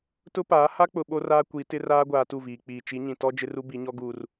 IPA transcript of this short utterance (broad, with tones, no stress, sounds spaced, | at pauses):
t ʊ˦ p aː˨˦ h a˦ k͡p ʊ˨ ɓ o˦ r aː˦ kʷ i˨˦ t ɪ˦ r aː˦ ɡʷ aː˨ t u˦˨ v iː˨ k͡p iː˨ t͡ʃ i˨˦ ɲ ĩ˨ t ɔ˦ d͡ʒ ɪ˦ r u˦ b i˨˦ ɲ ɔ˦ ɡ uː˨ r